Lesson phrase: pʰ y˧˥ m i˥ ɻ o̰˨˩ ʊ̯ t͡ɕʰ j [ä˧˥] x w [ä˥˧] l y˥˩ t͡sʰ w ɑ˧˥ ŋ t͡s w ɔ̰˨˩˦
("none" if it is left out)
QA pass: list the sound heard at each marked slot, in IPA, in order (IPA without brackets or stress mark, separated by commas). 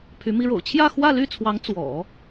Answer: ä˥˧, ä˥˧